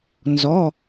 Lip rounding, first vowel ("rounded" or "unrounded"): rounded